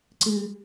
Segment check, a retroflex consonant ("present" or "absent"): absent